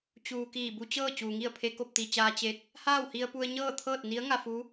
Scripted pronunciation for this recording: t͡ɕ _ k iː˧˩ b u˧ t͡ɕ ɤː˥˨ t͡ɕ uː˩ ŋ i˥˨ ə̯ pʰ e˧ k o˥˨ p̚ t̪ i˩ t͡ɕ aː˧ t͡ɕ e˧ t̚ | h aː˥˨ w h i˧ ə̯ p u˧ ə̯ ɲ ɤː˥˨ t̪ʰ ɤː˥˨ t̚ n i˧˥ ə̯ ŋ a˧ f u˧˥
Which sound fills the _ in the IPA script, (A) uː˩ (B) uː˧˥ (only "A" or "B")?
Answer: A